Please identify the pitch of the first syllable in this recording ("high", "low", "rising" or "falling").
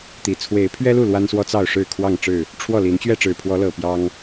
low